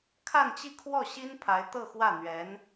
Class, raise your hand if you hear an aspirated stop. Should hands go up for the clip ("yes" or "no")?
yes